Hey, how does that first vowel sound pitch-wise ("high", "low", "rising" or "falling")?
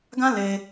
high